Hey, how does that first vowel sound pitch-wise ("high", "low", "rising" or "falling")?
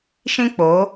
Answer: high